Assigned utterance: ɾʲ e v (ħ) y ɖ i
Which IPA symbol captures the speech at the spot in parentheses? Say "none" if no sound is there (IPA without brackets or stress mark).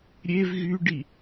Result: ɣ